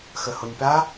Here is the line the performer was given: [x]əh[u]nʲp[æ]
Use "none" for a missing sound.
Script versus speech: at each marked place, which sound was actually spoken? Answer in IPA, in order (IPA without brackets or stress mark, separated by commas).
x, o, a